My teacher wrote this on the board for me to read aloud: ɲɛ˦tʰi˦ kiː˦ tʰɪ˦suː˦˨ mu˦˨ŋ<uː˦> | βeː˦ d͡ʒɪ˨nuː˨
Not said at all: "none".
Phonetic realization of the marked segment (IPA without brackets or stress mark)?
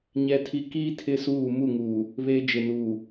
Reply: uː˨